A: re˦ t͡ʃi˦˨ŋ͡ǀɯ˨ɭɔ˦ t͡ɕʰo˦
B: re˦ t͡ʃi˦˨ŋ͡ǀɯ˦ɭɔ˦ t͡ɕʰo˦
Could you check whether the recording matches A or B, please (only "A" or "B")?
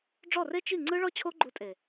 B